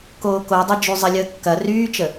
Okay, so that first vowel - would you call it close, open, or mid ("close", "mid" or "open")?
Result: mid